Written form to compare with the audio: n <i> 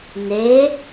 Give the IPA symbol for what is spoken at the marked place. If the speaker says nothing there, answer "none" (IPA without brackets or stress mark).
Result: e